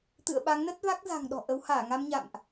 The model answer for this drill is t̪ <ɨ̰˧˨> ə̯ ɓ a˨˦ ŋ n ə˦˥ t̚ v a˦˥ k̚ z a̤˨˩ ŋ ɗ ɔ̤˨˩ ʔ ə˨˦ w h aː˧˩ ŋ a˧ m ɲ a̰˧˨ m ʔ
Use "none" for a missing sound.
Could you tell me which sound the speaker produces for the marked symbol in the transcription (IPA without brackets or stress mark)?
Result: ɨ̰˧˨